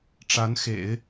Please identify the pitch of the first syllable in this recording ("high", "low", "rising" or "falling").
rising